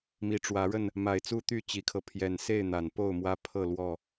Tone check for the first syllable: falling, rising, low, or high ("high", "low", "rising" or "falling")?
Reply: low